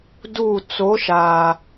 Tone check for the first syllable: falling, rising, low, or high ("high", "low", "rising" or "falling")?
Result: falling